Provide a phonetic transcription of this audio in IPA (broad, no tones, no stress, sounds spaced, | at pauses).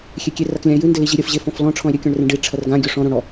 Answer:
xʲ e kʲ e r a k lʲ ã e̯ j ɨ n d ɘ l i ʑ i ɾʲ ɐ f ʑ e f ɔ̃ f l ɔ̃ ʈ͡ʂʰ ɔ̃ e̯ ɾʲ ɘ kʲ ɔ̃ ɳ r ẽ ɖ i ʈ͡ʂʰ ɐ r ɡ ã ɡʲ o ʂ ɔ̃ ɾ õ ɽ ɔ